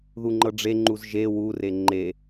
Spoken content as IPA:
ð u ŋ͡ǃ ɤ ɖ͡ʐ e ŋ͡ǃ u z ʒ e w u r e ŋ͡ǃ e

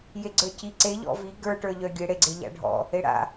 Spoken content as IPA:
j e ɡ͡ǀ ə˞ c i ǀ e ʎ ɔ̰ v i ɡ ə˞ ʈ ə˞ ʎ œ ɡʲ e ɽ e ɡ͡ǀ e ʎ a̰ ɖʱ ɔ̰ | e ɽ a̰

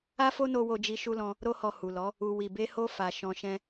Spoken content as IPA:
a˦ f o˦ n o˧ w o˧ d͡ʒ i˧ ʃ u˧ l ɔ̃˧ | ɾ o˧ h ɔ˨ h u˨ l ɔ˨˦ | u˨ w i˨ b e˧ h o˧ f a˨ ʃ ɔ̃˧ ʃ ɛ̃˦

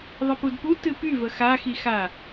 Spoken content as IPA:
ðˤ ə p u d p u t ɨ p y v ə x a x i x a

